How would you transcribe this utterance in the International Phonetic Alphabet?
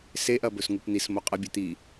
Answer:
s e ʔ ɐ b ɵ s ŋ u p n̪ i s m o qʼ ɐ bʲ ɵ t̪ i

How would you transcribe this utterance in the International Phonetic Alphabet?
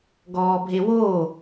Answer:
ɡ ɔː bʱ e w oː

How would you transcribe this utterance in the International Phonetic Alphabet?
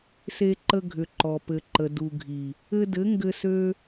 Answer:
s e˧ ǃ ə˧ ɡʱ ʏ˨ ǃ ɔ˨ p ɘ˨ ǃ ə˨ d u˨ ɡʱ i˨ | ɘ˧ d ɘ˨˦ ŋ ɡ ɘ˧ s ø˦

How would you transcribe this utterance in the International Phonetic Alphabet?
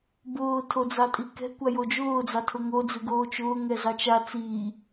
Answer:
b ʊː tʰ o d͡z ɑ tʼ i k ɛ̤ kʷ a j o d͡ʒ ʊː d͡z ɑ tʰ ʊ ŋ o d͡z ɨ ɡ oː t͡ʃ ʊː ŋ ɛ z ɑ t͡ʃ a t͡s iː

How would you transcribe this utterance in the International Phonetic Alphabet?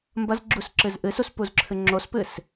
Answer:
m b ɐ z ɡ͡ǁ u s ǁ ɨ z ʔ ɨ s u s p u z ǁʰ ɨ ŋ͡ǁ o s p ɨ s

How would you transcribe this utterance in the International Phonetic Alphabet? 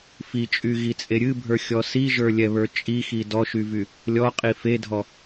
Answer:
f i t͡ʃʼ y ɣ i t͡sʼ e ɾʲ ɨ bʱ ə˞ xʲ ɔ s i ʒ ə˞ lʲ ɛ β ə˞ t͡ʃʼ i x i d ɔ ʃ y v y | lʲ ɔ qʼ i f e dʱ ɔ

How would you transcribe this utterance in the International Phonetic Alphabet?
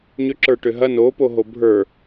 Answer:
ɲ ʏ ǁ ə˞ ʈ ʏ ɦ ɐ n o p o ɦ o bʱ ə˞

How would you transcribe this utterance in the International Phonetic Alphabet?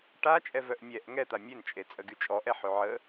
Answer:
ʈ a t͡ʃʼ ɛ v œ ʔ mʲ ɛ ʔ ŋ ɛ t̪ a mʲ e n t͡ʃʼ e t͡sʼ ə ɡ y t͡ʃʼ ɔ ʔ ɛ ħ ø ʕ ə

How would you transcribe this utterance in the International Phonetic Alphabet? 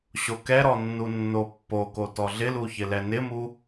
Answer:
ɕ o k ɛ ɾ ɔ nː u nː o pː o k o t ɔ ɮ ɪ l u ç ɪ l ɛ n ɪ m u

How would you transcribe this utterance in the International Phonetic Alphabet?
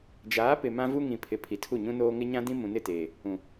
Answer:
d͡ʒ aː˨˦ p ɪ˨ m ã˦ v u˦ ŋ ĩ˨ pʰ ɪ˨ pʰ i˨ tʰ u˦˨ ɲ ũ˦ n oː˦ ŋ ɪ˦ ɲ ã˦ d ĩ˦ m ũ˨ n ɪ˦˨ t eː˨ | ũ˨

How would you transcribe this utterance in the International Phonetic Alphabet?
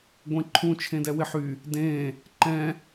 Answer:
ɡʷ ẽ ǃʰ ũ t͡ʃʰ ẽ d ɛ w ɪ ħ y | d ẽ | ǃ ɛ̃

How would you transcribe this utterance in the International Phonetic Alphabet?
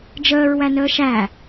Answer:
d͡ʒ əː ɹ w æ n əː ʃ æ

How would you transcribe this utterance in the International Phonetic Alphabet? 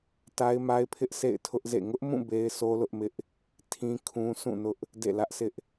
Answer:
t a˦ ɪ̯ m a˦ ɪ̯ pʰ ɪ˦ ʔ s ḛ˦˨ ɪ̯ tʰ ʊ˦ ʔ z ḛ˦˨ ŋ ʊ˦ ʔ m ũ˦˨ b e˦ ɪ̯ s o˦ l ʊ˦ ʔ m ɪ˦ ʔ | tʰ ĩ˦ kʰ ũ˦ s ũ˦˨ n ʊ˦ ʔ | d ḛ˦˨ l ä˦ ʔ s ɪ˦ ʔ

